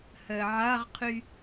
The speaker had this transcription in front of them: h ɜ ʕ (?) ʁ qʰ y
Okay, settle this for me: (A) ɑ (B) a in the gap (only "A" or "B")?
B